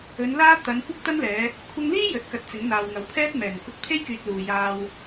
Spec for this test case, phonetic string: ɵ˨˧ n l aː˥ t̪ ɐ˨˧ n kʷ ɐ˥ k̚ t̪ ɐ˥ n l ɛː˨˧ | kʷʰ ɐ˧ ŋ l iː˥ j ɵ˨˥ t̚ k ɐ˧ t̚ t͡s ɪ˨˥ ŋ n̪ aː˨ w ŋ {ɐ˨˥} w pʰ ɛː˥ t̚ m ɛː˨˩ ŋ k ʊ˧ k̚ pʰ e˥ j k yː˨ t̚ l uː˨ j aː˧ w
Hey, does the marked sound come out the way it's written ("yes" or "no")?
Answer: yes